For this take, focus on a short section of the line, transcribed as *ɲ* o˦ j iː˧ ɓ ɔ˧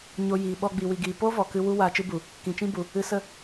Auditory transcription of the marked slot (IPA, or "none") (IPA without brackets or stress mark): ɲ